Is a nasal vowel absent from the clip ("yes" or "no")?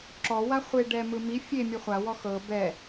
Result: yes